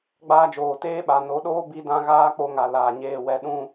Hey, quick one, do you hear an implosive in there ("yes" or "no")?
yes